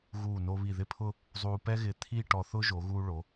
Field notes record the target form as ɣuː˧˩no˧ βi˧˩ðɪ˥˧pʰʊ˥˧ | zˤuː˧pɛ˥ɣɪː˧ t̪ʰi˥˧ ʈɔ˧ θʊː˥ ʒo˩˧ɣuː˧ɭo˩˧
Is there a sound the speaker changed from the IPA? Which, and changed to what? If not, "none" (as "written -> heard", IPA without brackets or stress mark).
none